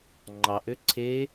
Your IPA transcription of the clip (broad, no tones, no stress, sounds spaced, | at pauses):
ŋ͡ǃ ɑ ʔ ø ǀʰ e